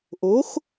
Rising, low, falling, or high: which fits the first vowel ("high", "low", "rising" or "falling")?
rising